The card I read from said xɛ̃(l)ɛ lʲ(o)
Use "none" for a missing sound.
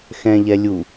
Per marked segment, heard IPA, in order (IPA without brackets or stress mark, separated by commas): ʎ, u